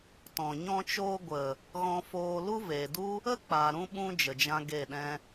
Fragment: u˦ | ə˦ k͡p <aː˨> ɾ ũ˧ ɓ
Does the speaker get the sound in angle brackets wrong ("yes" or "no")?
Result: no